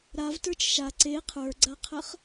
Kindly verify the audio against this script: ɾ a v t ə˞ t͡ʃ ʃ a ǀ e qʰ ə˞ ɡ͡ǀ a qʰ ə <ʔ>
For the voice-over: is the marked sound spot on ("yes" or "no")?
no